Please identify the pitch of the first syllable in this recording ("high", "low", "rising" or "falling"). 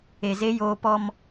low